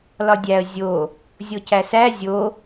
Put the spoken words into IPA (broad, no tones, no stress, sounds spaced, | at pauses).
l ɒ dʲ æ ə̯ zʲ o | zʲ o c æ s æ zʲ o